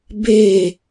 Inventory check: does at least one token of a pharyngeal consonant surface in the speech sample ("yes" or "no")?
no